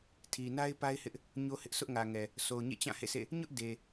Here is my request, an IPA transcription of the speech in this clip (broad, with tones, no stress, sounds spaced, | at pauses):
tʰ i˨ n a˦ ɪ̯ p a˦ ɪ̯ h ɪ˦ ʔ | ɲ o˦ h ɪ˦ ʔ s ʊ˦ ʔ ŋ ä˨ ŋ ɛ˨ | s o˨ ʊ̯ ɲ ḛ˦˨ t͡ɕ ã˦˨ h ḛ˦˨ s ḛ˦˨ | ɲ ʊ˦ ʔ d e˨